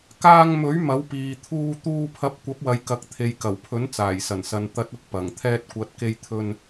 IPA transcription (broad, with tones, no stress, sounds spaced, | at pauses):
k aː˧ ŋ m ɵ˨˥ ɥ m ɐ˨˥ w p iː˨ t̪ʰ uː˧ t̪ uː˧ pʰ ɐ˨˥ p̚ kʷ ɐ˨˥ p̚ w ɐ˨ j k ɐ˨˥ k̚ t̪ʰ e˨ j k ɐ˨˩ w pʰ ɵ˨˥ n t͡s aː˨˩ j s ɐ˨˩ n s ɐ˨ n t̪ ɐ˨˥ t̚ ʊ˨ k̚ p ɐ˨˩ ŋ t̪ʰ ɛː˧ t̚ kʷ ɐ˨˥ t̚ k e˧ j t̪ʰ ɵ˧ n